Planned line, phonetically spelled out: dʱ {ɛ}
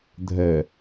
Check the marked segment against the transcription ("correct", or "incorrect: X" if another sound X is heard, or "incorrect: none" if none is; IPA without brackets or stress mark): correct